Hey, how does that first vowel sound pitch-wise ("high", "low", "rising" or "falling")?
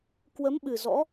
rising